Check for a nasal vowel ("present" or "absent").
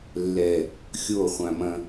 present